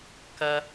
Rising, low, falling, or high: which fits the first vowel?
high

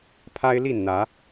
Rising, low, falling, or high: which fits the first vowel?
high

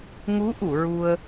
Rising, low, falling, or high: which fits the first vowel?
rising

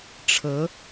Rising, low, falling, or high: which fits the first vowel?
rising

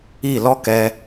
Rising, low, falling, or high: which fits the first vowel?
falling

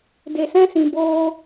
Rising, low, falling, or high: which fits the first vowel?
low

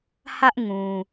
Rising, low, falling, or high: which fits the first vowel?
high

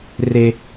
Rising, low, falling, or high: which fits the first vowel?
high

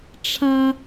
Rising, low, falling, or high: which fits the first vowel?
high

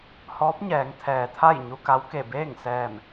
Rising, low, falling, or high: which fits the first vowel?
rising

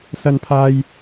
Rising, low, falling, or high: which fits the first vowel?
high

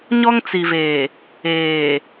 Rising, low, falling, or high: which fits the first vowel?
high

